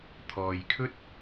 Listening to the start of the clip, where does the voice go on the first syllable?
low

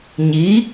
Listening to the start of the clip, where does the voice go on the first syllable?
rising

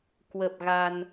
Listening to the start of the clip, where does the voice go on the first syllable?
low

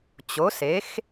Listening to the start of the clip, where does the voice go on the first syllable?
rising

